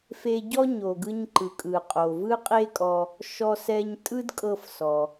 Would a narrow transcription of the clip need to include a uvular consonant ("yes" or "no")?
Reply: yes